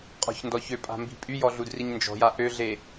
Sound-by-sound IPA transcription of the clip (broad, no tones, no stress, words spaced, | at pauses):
qʼɔ̤çndɔçøpʼa̤ mbi̤pʼyjɔ ɮudriɲnd͡ʒɔ̤ja ʔøɮe